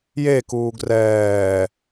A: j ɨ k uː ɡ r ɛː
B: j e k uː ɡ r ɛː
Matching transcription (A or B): B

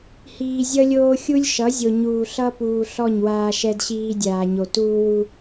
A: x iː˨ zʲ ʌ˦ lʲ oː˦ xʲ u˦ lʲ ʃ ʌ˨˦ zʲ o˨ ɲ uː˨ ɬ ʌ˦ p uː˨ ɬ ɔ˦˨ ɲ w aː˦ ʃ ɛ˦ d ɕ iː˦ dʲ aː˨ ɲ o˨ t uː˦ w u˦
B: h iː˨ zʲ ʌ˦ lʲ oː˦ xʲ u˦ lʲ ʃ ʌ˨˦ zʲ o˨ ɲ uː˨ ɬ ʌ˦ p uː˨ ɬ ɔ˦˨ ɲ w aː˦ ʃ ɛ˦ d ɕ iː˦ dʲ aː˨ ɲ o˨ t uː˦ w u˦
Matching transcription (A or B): B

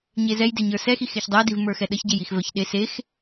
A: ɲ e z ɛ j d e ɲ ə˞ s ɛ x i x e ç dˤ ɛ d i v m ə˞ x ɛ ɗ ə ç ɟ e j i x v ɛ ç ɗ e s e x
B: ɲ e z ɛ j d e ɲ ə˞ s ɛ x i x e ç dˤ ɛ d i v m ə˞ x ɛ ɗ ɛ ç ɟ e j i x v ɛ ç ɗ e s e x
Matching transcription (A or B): A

